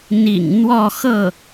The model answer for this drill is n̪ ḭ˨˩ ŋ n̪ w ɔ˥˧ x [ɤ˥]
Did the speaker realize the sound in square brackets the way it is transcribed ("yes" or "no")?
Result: no